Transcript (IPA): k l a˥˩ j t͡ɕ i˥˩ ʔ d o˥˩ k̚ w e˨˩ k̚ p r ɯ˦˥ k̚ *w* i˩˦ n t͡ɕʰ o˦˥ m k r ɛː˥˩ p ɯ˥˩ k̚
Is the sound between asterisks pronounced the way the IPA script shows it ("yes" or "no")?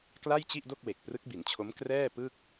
no